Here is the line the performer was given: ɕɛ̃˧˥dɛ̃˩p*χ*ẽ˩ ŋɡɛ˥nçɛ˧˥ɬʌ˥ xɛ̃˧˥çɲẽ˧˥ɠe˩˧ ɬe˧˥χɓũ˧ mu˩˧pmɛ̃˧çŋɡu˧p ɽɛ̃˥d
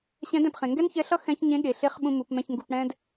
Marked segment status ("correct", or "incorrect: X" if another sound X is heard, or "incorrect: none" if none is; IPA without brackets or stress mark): correct